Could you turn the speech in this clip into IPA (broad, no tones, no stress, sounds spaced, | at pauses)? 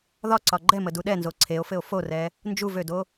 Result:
ð ɒ ǀ ɒ ɡ͡ǃ ɛ m ə d u ɗ ɛ n z o ǀʰ e o̯ f ɘ o̯ f o r ɛ | n d͡ʒ u v ø d o